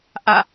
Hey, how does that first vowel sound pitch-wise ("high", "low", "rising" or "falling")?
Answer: falling